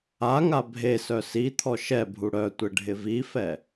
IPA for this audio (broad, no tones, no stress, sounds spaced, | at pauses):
a ŋ a bʱ e s œ s i t̪ʰ ɔ ʃ ɛ bʱ u ɽ œ tʷ ɪ ɖʱ ɪ v i f ɛ